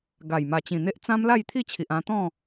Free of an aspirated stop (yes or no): no